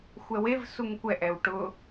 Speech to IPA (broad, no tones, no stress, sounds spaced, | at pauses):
xʷ ɛ w e v s u ŋ kʷ ɛ ʔ ɛ w ʈ ʊ